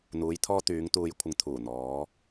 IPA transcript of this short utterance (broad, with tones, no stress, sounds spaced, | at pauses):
n̪ uː˨˧ j t̪ʰ ɔː˧ t̪ yː˨˧ ŋ t̪ uː˨ j kʷʰ ɪ˨ ŋ t̪ʰ uː˨˩ n̪ ɔː˨˧